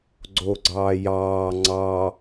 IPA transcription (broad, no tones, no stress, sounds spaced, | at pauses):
ɡ͡ǀ o ɡ͡ǀ ɑː j ɑː ŋ͡ǀ ɑ